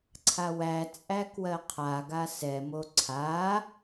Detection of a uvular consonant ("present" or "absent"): present